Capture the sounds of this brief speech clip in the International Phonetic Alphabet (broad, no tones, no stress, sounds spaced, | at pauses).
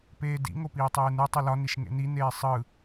p eː d ḭ ŋ o p iː tˤ eː n ɯ tˤ ɯ l ɒ n i ʃ ŋ ḛ n i n eː sˤ ɯ